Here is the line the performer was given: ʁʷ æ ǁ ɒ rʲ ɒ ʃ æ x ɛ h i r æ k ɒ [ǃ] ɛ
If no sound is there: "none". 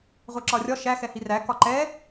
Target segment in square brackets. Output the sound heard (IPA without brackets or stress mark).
ǃ